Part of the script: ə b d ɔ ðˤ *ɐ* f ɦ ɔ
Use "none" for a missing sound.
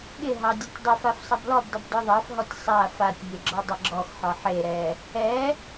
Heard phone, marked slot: ɑ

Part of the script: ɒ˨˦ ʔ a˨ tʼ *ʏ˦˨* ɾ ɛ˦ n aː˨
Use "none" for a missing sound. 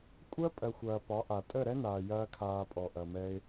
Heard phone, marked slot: ə˦˨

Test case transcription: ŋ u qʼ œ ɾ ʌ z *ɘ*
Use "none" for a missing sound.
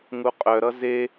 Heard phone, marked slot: e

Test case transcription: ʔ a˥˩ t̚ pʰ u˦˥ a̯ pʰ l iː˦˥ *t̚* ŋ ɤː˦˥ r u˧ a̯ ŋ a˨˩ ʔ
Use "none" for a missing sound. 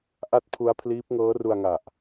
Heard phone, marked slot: p̚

